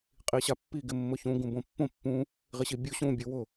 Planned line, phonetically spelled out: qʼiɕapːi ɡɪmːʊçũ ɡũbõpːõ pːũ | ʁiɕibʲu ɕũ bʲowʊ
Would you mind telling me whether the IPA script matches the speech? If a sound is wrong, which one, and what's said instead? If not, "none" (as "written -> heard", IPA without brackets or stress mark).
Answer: none